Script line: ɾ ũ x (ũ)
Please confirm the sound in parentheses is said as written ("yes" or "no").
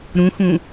yes